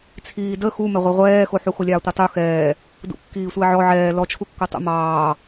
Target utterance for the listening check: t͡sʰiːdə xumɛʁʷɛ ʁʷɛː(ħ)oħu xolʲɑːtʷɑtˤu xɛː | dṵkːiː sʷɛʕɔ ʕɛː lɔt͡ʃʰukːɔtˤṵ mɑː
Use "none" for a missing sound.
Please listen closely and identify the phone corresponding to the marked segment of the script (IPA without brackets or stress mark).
x